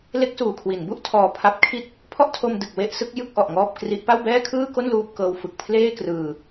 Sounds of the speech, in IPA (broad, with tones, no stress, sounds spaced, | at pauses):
l e˦˥ k̚ s uː˨˩ kʰ w i˩˦ n b u˥˩ ʔ tʰ ɔː˧ pʰ a˦˥ p̚ kʰ i˦˥ t̚ | pʰ ɔ˥˩ ʔ tʰ o˧ m d ɯ˨˩ k̚ w e˦˥ ʔ s ɯ˦˥ k̚ j ɯ˥˩ k̚ ʔ ɔ˨˩ ʔ ŋ ɔː˥˩ p̚ k r i˦˥ ʔ p a˥˩ w b ɛː˥˩ kʰ ɯː˥˩ k o˥˩ n l uː˥˩ p̚ k ɤː˦˥ w f ɯ˨˩ k̚ pʰ l eː˥˩ k r ɯː˧